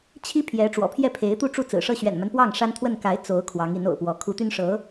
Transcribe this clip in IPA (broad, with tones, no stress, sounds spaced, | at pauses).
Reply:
t͡ɕʰ i˥ pʰ j ɛ˧˥ ʈ͡ʂ w ɔ̰˨˩ pʰ j ɛ˥˩ pʰ e˧˥ ɪ̯ t̪ u˥˧ ʈ͡ʂ u˥˩ t͡s ɹ̩˨˩ ʂ ɤ˥˩ ɕ ɥ ɛ̰˨˩ n m a˦ n p w ɑ˥˩ ŋ ʂ a˥ n t̪ʰ w ə˥˩ n k a˧˥ ɪ̯ t͡s o˧˥ ʊ̯ kʰ w ɑ˧˥ ŋ i˧˥ n o̰˨˩ ʊ̯ p w ɔ˧˥ kʰ u˧˥ t̪ y˥ n ʂ ɤ˧˥